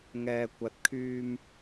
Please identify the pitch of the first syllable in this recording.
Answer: low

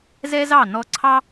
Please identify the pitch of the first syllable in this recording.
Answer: high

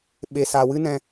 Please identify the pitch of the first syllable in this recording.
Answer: low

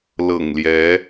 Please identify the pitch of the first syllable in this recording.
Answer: low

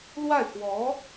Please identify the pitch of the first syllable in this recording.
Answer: falling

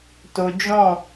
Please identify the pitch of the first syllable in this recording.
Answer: high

